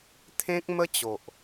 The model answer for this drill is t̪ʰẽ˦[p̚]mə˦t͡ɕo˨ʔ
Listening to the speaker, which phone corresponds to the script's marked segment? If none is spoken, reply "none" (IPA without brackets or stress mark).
k̚